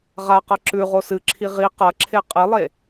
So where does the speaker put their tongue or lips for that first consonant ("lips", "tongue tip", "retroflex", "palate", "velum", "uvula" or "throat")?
uvula